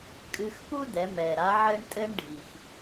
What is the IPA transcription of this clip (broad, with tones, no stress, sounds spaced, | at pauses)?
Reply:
kʼ ɨ˧ x p u˥ d ɛ˩˧ m ɛ˩ ɾ a˧˥ ʕ ɘ˧ ɳ tʼ ɘ˧ ɳ ɖʱ i˩ x